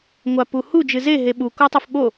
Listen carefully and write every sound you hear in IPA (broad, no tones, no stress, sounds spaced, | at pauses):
ŋʷ a p u h u d͡ʒ ɨ z e ɦ e ɓ u k o tˤ ɛ f ɓ o